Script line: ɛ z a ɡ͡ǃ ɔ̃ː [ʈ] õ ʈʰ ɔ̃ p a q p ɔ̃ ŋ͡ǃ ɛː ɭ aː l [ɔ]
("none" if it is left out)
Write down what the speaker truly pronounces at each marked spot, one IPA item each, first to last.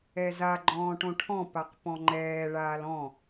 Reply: ʈ, ɔ̃

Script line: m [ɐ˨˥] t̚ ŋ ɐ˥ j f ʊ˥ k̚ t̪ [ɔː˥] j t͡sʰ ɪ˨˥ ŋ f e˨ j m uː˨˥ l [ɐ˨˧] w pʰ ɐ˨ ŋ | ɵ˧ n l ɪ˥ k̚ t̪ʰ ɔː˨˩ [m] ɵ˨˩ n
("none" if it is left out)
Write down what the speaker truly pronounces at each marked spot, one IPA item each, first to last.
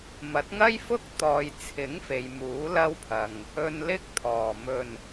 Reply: ɐ˨˥, ɔː˨, ɐ˥, m

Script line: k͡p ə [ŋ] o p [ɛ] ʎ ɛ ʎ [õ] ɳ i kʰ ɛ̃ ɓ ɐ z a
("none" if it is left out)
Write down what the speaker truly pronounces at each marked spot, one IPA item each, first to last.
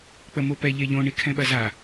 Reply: m, ɛ, õ

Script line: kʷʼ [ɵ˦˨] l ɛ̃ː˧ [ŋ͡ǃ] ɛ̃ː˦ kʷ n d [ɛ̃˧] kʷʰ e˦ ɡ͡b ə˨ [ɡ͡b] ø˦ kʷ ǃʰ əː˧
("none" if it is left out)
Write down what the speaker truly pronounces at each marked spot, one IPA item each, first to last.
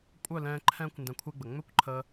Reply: œ˦˨, ǃʰ, ɛ̃˧, ŋ͡m

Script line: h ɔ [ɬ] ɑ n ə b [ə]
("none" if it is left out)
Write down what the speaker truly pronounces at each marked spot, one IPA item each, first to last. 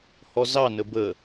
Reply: z, ə

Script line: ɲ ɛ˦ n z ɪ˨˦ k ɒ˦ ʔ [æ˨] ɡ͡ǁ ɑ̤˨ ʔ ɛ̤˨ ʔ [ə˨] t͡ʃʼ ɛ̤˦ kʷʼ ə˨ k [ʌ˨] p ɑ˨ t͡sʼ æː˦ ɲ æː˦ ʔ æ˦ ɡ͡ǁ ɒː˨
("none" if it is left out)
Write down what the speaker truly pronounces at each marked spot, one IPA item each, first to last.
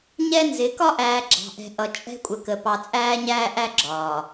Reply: æː˨, ʌ˨, ə˨

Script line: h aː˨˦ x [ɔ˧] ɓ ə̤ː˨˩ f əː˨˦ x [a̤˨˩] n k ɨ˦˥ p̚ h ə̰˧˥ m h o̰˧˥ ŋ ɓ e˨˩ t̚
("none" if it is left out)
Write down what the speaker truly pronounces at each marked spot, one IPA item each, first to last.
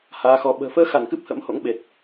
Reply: ɔ˧, a˧˩

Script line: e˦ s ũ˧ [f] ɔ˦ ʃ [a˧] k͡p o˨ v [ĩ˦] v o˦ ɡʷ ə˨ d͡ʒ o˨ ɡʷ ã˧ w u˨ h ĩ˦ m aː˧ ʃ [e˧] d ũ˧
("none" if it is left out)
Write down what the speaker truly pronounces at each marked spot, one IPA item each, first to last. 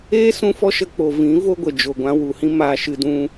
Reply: f, ə˧, ĩ˨˦, ɨ˧

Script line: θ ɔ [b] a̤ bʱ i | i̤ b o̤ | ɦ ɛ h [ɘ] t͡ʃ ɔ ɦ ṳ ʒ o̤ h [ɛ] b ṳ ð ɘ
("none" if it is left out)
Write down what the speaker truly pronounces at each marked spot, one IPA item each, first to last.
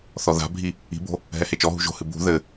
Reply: ð, e, ɨ

